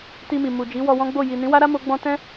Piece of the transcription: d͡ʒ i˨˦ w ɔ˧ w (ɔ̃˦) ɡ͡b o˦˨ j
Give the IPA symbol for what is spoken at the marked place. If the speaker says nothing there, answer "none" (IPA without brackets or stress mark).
ɔ̃˦